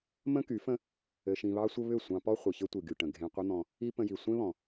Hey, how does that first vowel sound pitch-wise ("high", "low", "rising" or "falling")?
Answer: high